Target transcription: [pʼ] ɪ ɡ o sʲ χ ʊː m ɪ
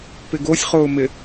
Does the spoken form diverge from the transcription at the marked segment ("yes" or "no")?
yes